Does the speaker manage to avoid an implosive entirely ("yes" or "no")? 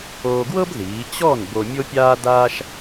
yes